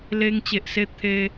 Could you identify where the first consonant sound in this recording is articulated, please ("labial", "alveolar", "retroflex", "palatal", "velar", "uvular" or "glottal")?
alveolar